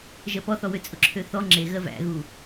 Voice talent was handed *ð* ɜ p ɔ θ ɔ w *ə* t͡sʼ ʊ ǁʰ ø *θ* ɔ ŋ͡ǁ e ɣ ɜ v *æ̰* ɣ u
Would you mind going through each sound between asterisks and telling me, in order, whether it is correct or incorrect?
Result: incorrect: ʒ, incorrect: ø, correct, correct

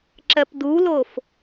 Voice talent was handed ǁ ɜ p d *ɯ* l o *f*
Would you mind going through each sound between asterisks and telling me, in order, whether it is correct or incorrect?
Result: incorrect: u, correct

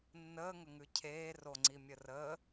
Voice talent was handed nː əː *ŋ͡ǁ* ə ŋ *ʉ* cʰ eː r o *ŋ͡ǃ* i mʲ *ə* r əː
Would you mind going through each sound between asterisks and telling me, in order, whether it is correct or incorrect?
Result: incorrect: ŋ, correct, incorrect: ŋ͡ǀ, correct

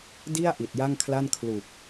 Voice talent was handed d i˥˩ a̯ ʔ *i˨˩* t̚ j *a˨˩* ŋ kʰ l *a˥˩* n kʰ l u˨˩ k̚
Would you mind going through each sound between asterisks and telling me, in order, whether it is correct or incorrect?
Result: correct, incorrect: a˥˩, correct

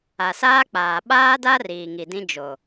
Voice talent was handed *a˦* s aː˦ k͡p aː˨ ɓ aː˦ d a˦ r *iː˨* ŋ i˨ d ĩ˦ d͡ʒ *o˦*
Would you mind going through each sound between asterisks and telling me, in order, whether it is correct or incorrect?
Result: incorrect: a˨, correct, incorrect: o˨

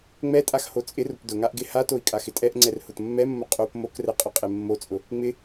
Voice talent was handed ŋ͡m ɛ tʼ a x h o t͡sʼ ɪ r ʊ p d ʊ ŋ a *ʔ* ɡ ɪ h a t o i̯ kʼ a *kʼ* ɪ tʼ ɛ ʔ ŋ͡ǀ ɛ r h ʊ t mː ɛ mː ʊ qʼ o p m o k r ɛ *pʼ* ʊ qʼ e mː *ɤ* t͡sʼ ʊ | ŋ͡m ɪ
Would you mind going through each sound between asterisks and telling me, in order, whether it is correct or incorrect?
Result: correct, incorrect: x, incorrect: qʼ, incorrect: o

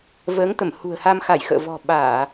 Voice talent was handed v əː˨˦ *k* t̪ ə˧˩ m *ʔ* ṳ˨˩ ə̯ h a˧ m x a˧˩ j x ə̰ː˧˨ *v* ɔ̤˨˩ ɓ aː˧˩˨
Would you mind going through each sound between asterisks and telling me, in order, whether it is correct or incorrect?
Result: incorrect: ŋ, incorrect: h, correct

